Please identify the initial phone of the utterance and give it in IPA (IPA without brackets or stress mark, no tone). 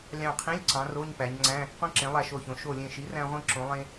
lʲ